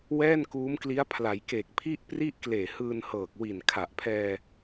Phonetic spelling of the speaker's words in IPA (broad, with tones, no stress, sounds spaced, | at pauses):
w ɛː˥˩ n k uː˦˥ m k l i˦˥ a̯ pʰ l a˩˦ j k e˨˩ k̚ pʰ i˥˩ ʔ p r i˥˩ ʔ k l eː˨˩ h ɯː˧ n h ɤː˨˩ k̚ w i˨˩ n kʰ a˨˩ ʔ pʰ ɛː˧